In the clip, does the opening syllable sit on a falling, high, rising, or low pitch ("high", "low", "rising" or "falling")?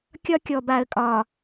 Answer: high